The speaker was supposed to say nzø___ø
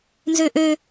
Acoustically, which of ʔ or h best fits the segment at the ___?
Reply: ʔ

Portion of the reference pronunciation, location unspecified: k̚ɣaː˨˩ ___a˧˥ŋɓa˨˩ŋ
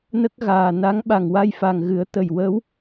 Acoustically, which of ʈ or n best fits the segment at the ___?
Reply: n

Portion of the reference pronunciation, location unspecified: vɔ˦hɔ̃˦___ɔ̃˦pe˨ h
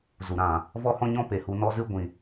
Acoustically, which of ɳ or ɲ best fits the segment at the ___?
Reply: ɲ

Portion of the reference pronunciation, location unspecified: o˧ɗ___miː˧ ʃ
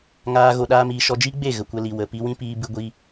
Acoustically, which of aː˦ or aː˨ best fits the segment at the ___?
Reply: aː˦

